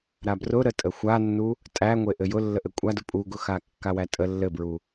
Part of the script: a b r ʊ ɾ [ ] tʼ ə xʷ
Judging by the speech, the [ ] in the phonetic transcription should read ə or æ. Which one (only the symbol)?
ə